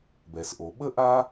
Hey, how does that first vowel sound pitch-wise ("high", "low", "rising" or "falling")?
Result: low